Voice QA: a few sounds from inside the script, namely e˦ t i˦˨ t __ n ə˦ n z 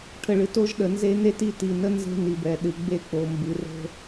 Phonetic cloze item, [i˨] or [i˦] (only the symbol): i˨